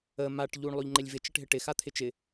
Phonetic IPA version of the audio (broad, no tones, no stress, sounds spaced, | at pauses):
ə m a ʈ ʎ u ɳ lˠ o ʎ ŋ͡ǃ ɪ lʲ v ɪ t͡ʃ ə ʈ ɦ ɪ ʈ ɪ x a t̪ʰ ɪ t͡ʃ ɪ